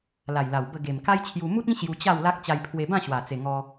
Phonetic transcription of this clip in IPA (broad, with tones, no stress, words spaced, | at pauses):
la˨˩jla˨˩w bə˧ ɡe˨˩m ka˦jt͡ɕʰju˧ mu˦t̚ĩ˦ ɕju˧t͡ɕa˥˧wla˦k̚ t͡ɕa˧jpʰwe˧bã˥˧ ɕwa˨˩t͡se˨˩ ŋɔ˧